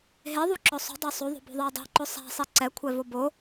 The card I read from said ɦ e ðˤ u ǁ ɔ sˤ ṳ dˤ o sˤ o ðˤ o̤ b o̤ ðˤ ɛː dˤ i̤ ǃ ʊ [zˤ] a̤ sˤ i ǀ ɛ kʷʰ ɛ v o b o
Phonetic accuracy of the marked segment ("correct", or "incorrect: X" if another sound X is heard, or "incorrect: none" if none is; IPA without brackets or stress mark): incorrect: sˤ